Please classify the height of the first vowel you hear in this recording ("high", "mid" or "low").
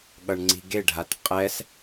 mid